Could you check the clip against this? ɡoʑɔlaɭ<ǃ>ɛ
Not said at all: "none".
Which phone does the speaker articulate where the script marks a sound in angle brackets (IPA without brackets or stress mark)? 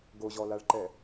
ǃ